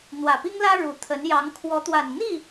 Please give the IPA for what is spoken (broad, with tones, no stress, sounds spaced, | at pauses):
n̪ w ä˨˩ p i˥ ŋ l ä˥ ɻ u˨˩ t̪ʰ ə˧˥ n j ɑ˧˥ ŋ kʰ w ɔ˧˥ t̪ w a˨˩ n n̪ i˥˩